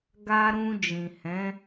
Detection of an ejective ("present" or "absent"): absent